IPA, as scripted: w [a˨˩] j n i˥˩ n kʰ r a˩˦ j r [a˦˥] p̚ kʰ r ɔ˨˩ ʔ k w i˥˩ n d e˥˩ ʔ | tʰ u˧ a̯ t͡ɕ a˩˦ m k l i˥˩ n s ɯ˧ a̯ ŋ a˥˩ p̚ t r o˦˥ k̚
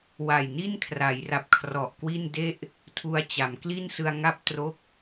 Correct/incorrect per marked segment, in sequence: correct, incorrect: a˨˩

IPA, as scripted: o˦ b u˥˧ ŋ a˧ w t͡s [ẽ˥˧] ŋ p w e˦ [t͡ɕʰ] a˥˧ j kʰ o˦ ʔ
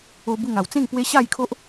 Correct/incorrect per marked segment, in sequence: correct, incorrect: ɕ

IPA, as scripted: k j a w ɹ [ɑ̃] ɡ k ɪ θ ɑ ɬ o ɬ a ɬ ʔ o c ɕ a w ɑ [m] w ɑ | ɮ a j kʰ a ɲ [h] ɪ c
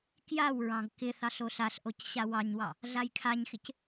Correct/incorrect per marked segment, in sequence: correct, incorrect: ɲ, incorrect: x

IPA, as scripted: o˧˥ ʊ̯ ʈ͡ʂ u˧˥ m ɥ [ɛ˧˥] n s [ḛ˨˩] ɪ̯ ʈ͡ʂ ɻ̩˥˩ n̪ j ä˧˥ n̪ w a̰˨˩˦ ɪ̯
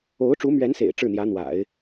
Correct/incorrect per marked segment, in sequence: correct, correct

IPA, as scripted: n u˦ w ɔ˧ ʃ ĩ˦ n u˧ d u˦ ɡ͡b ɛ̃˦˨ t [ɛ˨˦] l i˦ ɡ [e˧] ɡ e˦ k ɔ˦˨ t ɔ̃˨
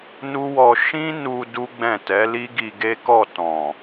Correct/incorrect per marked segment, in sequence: correct, incorrect: i˧

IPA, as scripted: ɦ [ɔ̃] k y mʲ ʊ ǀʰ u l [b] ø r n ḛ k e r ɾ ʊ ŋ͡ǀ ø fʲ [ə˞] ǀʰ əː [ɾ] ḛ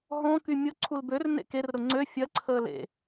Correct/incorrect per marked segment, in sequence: correct, correct, incorrect: ɐ, incorrect: l

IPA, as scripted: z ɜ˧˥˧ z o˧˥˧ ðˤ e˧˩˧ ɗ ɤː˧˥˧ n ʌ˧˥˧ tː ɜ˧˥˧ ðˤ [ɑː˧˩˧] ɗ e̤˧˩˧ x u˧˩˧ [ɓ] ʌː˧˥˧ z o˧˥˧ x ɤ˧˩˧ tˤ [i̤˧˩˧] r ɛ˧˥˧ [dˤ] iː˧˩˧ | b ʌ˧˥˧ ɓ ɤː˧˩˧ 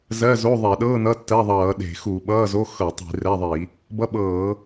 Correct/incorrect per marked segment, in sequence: incorrect: ʌː˧˩˧, correct, correct, incorrect: ðˤ

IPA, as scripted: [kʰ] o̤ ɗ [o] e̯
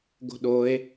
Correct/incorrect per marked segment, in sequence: incorrect: ɡ, correct

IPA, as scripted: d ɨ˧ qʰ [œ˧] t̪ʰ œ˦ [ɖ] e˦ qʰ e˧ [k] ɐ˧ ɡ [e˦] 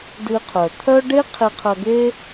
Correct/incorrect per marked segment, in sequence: incorrect: œ˨, correct, incorrect: qʰ, correct

